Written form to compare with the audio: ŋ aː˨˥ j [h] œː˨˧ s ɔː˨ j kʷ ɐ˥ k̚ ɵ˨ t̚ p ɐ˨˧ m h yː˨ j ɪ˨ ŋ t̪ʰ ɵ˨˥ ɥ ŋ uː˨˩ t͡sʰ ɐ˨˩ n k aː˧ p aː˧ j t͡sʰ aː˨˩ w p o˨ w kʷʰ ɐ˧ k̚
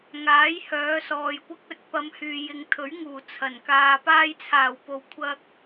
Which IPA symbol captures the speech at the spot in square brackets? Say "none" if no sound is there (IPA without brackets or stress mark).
h